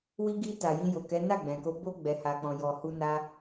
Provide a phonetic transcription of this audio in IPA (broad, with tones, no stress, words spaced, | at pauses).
wi˧ɡi˧ ta˨jĩ˧jo˨kɛ˨˦ na˦˨ɡ͡bɛ̃˨ko˧ bo˦ ɡ͡bɛ˧ha˧k͡pɔ̃˧ jɔ˨hu˧ na˧